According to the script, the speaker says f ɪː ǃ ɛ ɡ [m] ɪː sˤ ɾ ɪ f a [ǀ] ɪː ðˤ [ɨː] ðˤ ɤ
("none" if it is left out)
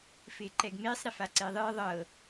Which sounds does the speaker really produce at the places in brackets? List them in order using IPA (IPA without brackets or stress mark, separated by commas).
m, ǀ, ɨː